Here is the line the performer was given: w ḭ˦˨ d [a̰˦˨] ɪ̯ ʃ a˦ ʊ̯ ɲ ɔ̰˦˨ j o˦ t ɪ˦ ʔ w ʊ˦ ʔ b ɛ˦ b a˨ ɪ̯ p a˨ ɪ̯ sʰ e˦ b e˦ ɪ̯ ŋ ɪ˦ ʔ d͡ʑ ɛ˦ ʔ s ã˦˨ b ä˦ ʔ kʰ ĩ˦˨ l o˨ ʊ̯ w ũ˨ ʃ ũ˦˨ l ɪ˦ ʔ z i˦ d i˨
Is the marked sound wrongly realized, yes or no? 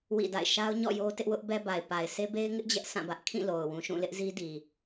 no